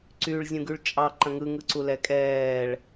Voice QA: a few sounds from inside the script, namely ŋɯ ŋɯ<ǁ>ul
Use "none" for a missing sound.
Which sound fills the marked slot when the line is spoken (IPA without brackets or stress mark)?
ǀ